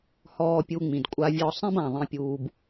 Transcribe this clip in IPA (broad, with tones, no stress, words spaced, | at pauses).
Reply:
hɔː˨pʲu˨ ŋ͡mĩ˩dkʷʼa˨vʲɔ˨ sˤẽ˦bã˩ðˤĩ˨pʲuː˨b